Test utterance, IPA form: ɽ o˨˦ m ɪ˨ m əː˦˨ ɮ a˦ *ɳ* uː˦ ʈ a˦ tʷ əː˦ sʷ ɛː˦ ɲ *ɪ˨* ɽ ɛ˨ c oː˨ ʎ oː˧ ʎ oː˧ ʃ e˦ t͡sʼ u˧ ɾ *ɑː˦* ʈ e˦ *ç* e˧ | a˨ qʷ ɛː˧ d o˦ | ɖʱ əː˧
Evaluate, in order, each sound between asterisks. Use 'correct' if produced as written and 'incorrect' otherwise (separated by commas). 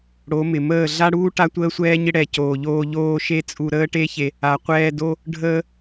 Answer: incorrect, incorrect, incorrect, correct